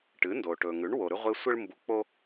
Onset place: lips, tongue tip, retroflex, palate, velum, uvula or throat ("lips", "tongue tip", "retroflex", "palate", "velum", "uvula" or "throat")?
retroflex